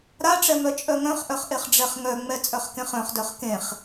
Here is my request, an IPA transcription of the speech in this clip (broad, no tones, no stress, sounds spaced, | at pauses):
ɾ a ʈ͡ʂ ɛ m œ t͡ʃʼ œ ŋ œ̃ χ ʔ œ χ ʔ e χ ɖ͡ʐ ɛ χ ŋ œ ŋ͡m ɛ t͡sʼ œ χ k ẽ χ œ̃ χ d œ χ k ẽ χ